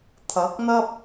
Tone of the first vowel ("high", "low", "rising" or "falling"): rising